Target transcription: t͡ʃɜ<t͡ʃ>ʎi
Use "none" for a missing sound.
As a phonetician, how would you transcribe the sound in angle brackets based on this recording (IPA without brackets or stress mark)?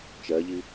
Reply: none